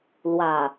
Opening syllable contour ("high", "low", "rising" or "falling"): low